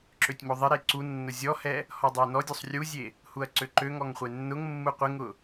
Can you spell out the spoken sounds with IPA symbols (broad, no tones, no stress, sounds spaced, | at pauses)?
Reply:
ǁ ø tʲ m o ðˤ ɪ ɾ e ǀ u nː ʊ zʲ ɔ h ɛ | h ɔ dˤ e n ɔ dʲ o sˤ rʲ u zʲ e | h u ɐ̯ ǀ ø ǃ ø ŋ ɔ ŋ χʷ e nː ʊ ŋ mː u qʷ ɪ ŋ ʊ